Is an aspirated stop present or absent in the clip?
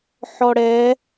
absent